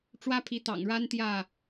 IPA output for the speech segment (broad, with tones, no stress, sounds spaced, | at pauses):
ʈ͡ʂ w ä˦ pʰ i˨˦ t̪ ɑ̰˨˩ ŋ ɻ a˦ n t̪ j ä˥˨